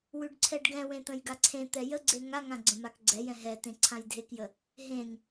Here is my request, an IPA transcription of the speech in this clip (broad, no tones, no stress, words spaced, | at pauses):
wʉɖǀʰɛɖɡɛ̃wẽ t̪ə̃jɡaǀʰẽt̪ɛ jəɡ͡ǀe ŋaŋã ɡ͡ǀə̃makɡ͡ǀɛjɛ̃ ɦɛ tẽǀʰãjdʱekjə | ɦẽŋ